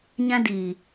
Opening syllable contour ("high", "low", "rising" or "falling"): high